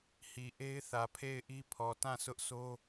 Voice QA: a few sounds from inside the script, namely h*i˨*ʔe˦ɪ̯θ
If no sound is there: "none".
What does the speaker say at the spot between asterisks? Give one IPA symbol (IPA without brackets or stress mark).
i˨